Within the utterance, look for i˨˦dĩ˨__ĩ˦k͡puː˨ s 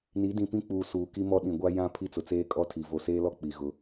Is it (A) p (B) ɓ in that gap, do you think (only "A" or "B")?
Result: A